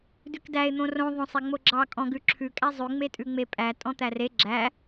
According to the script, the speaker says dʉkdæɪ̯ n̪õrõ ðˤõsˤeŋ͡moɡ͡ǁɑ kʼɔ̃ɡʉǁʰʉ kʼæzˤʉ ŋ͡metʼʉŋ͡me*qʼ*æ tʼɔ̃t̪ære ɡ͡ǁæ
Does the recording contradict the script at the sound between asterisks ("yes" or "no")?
yes